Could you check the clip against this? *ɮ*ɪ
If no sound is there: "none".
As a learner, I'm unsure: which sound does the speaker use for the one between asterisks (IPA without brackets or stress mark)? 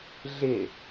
ɮ